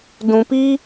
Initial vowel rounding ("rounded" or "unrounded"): rounded